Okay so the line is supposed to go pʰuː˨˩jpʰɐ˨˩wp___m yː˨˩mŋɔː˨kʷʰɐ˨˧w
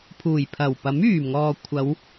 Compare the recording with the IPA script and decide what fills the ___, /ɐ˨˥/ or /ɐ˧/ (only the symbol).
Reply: ɐ˨˥